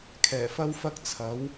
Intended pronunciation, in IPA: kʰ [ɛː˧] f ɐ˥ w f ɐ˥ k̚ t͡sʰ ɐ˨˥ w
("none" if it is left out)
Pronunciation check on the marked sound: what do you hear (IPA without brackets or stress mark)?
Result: ɛː˨˩